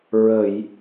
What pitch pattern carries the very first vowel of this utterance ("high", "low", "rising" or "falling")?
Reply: low